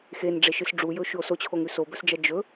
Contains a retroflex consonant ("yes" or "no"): yes